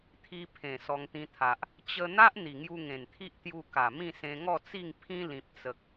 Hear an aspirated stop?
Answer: yes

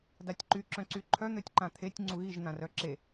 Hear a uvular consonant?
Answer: no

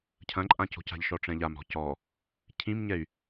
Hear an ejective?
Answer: yes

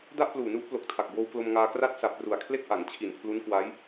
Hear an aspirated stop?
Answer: yes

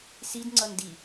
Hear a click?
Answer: yes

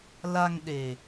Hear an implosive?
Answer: yes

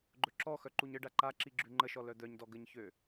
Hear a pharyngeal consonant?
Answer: no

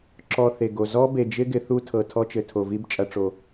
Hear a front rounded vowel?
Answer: no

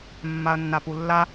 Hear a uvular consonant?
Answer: no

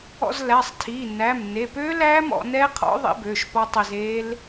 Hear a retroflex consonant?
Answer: no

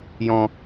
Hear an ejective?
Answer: no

